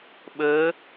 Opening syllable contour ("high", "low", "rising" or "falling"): rising